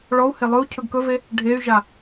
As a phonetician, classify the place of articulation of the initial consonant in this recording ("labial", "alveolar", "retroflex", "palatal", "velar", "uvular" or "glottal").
retroflex